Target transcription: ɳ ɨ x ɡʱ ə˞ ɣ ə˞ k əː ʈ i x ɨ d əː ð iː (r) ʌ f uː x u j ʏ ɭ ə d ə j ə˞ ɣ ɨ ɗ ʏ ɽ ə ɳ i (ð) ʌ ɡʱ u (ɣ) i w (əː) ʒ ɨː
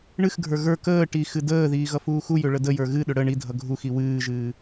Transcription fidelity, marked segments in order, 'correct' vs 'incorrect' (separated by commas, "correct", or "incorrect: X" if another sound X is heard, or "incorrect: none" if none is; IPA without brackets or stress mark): incorrect: ɣ, incorrect: dʱ, incorrect: x, incorrect: ɨː